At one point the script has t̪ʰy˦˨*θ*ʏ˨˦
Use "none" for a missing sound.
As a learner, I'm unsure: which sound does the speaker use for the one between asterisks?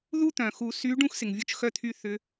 θ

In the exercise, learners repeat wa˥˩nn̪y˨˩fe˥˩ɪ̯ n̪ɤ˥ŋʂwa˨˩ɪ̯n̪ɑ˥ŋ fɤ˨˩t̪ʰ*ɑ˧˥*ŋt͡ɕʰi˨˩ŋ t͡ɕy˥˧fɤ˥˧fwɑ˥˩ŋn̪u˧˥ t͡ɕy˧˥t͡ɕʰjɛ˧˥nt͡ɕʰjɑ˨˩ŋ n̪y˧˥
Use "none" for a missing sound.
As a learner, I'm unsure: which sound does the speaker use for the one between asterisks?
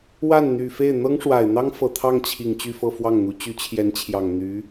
ɑ˥˩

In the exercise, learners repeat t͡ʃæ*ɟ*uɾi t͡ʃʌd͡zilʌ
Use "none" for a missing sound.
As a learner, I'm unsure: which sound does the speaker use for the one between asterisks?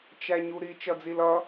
ɲ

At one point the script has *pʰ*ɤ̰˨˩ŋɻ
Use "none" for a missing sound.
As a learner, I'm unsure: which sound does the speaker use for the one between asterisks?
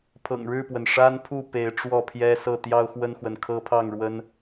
pʰ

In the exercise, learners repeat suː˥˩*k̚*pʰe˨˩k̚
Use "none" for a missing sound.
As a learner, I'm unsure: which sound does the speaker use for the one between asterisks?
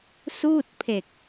t̚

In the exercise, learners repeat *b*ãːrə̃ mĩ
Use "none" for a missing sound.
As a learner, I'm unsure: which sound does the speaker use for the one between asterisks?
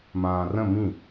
m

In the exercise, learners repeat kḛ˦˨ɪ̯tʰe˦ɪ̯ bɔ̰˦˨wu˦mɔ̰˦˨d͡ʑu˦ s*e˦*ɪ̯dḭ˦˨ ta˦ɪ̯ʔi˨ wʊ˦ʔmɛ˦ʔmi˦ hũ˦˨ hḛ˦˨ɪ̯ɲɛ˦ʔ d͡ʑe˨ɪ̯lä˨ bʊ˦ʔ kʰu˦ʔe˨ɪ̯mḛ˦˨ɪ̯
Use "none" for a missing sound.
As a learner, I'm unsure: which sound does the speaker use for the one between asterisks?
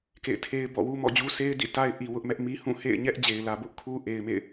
e˦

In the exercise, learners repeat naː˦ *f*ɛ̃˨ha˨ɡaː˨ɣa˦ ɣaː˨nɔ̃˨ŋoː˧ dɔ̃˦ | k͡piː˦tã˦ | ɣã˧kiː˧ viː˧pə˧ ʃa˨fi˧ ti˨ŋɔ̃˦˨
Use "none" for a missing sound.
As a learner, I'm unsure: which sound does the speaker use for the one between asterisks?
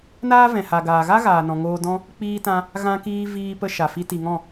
v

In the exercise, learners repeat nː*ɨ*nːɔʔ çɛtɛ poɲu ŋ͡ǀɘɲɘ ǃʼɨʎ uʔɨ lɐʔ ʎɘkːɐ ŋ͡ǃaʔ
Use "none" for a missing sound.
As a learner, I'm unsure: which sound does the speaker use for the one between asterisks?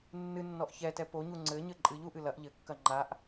ɨ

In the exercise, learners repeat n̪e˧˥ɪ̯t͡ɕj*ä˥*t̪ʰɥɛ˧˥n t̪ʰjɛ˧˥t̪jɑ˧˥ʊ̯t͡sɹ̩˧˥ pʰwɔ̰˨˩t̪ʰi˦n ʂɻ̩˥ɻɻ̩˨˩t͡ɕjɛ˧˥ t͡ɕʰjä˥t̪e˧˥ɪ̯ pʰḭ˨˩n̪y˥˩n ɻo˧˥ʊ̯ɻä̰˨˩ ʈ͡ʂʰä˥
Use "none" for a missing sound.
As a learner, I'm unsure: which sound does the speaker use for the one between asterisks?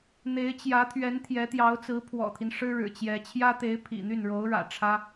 ä˧˥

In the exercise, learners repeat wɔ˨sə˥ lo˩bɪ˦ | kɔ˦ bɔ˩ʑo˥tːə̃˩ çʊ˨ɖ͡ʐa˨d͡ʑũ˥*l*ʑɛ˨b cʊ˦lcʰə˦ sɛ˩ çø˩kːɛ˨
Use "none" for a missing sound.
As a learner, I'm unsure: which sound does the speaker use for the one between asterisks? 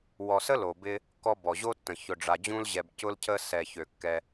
l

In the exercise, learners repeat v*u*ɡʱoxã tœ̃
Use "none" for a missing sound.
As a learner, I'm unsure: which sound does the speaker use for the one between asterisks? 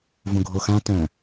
ũ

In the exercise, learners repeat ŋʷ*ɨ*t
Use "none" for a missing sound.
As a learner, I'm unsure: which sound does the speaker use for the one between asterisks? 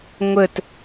ə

